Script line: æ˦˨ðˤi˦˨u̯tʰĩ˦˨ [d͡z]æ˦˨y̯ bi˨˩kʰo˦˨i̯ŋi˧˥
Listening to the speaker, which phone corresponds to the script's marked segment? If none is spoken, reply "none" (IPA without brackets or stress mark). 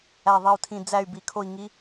d͡z